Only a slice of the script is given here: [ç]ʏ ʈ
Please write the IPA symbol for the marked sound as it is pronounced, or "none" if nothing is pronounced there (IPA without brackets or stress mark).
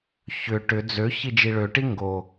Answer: ç